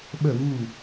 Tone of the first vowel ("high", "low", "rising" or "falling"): falling